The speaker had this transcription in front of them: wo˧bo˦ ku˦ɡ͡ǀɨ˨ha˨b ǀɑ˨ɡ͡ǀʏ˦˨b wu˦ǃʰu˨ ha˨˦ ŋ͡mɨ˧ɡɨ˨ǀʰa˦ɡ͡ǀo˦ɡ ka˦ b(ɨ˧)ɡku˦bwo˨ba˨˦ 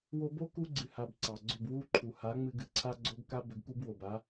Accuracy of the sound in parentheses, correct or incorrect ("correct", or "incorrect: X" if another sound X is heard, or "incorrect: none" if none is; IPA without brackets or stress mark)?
incorrect: ʏ˧